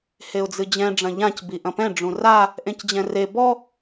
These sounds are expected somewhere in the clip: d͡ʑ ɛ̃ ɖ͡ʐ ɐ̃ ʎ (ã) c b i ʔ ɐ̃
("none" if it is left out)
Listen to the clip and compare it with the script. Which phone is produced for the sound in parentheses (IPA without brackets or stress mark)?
ã